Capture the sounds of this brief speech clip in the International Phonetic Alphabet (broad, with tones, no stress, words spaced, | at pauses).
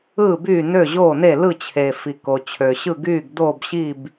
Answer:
ɯː˥˨byː˥˨ nø˥˨ʑoː˥˨ne˥˨ lɯ˥˨t͡ɕʰe˩fi˩ ko˩t͡ɕʰø˩ ɕɯ˥˨ɡyː˥˨ɡdoː˥˨bɕi˥˨b